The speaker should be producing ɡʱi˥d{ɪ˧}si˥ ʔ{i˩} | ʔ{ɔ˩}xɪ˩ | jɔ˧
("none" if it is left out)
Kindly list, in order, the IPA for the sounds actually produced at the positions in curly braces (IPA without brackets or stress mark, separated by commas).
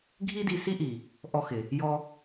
i˧, i˩, ɔ˧